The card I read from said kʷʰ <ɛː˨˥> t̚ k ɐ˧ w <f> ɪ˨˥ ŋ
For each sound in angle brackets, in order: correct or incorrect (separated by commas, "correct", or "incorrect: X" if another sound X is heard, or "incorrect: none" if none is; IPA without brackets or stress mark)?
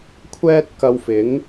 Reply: incorrect: ɛː˥, correct